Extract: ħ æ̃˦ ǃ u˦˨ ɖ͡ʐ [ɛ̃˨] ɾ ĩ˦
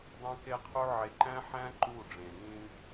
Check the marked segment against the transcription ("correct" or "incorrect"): incorrect